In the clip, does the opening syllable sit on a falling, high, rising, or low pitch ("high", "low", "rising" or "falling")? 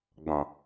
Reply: low